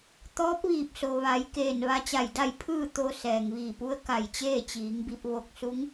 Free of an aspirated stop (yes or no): no